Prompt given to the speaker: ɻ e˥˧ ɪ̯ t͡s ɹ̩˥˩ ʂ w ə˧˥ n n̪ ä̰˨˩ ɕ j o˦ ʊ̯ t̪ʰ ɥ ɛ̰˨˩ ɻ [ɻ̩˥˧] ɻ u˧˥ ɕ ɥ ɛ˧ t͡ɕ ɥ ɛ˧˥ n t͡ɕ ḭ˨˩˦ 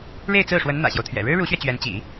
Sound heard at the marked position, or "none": ɻ̩˥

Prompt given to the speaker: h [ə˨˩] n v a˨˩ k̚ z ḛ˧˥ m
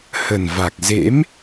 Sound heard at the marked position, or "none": ə˨˩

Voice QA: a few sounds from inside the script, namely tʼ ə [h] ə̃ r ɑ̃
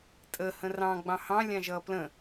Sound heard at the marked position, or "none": h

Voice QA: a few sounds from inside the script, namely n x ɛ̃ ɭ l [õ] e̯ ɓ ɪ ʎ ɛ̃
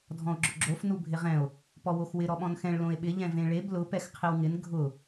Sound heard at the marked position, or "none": õ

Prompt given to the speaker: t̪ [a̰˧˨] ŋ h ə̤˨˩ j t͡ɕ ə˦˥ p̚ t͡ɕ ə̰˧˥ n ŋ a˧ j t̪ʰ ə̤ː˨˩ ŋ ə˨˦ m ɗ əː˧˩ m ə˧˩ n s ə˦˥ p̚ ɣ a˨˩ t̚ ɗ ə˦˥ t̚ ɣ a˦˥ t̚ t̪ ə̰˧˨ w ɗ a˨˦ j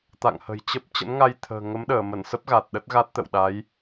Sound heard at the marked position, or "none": a̰˧˨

